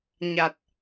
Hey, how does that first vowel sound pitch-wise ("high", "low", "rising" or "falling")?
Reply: low